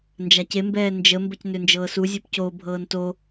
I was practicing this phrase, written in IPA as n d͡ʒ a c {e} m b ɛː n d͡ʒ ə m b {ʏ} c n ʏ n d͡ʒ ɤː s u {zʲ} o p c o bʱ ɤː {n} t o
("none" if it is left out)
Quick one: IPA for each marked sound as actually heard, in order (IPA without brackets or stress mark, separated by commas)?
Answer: e, ə, zʲ, n